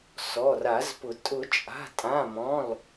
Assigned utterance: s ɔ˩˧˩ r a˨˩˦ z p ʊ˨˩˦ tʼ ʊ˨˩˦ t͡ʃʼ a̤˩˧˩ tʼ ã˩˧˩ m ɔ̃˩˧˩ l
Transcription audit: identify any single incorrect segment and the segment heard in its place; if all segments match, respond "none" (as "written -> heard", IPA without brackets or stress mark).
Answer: none